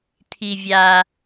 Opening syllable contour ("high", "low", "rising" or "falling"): low